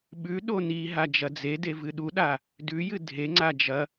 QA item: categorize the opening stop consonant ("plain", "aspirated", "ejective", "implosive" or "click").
implosive